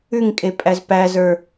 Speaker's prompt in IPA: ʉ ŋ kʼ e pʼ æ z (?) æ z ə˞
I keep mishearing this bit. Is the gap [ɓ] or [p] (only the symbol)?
p